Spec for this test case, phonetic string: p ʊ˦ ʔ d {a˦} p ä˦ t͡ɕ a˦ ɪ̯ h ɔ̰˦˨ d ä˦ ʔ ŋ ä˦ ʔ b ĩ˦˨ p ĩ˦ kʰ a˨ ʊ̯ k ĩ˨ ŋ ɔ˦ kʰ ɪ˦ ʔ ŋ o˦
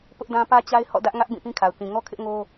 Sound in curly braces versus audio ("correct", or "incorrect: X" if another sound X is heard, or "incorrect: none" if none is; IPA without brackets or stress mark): incorrect: ã˦